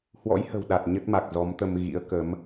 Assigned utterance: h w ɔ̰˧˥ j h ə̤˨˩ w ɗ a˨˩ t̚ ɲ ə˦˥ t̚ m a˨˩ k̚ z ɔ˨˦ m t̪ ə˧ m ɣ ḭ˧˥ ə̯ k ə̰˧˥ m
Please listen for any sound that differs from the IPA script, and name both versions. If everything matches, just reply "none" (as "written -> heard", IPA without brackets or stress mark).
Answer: ə̰˧˥ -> ə˨˦